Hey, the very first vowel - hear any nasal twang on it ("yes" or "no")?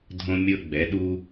yes